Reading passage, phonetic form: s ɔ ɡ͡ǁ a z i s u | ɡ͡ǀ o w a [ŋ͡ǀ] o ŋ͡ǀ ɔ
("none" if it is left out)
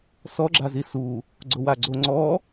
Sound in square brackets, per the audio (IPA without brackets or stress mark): ɡ͡ǀ